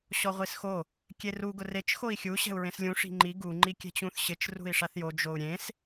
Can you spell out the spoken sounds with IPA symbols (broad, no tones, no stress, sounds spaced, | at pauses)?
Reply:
ɕ ɔ ʁʷ i s x o | kʲ e r u ɡ ʊ r e t͡ʃ x o i̯ xʲ u ɕ ɛ̤ u̯ ɹ ẽ s lʲ ũ ʂ i̤ ŋ͡ǃ i ɡ u ŋ͡ǃ i kʲ ɛ̤ t͡ɕ ũ θ ɕ ɪ t͡ʃ r ṳ i̯ ʂ a θ j o d͡ʒ o u̯ ɾʲ ẽ s